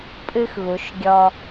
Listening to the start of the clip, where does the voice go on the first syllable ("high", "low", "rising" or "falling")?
high